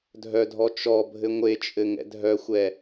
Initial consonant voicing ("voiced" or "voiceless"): voiced